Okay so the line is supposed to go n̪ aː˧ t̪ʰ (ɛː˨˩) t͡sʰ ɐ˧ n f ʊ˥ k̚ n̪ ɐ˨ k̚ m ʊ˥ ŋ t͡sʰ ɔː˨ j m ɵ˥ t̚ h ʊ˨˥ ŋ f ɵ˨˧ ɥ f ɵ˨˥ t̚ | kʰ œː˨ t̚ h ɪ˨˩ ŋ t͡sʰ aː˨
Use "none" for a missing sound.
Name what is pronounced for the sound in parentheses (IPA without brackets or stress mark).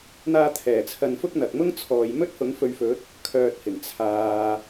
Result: ɛː˨˩